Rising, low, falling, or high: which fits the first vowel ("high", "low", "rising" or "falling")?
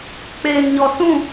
low